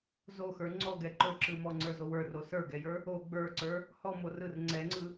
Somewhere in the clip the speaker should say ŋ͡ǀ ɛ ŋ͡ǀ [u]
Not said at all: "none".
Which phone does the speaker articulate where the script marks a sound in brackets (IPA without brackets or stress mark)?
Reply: ɯ